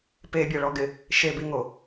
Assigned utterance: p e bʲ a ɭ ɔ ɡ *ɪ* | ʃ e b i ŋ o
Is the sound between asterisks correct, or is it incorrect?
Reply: correct